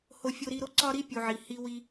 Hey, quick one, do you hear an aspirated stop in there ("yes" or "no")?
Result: no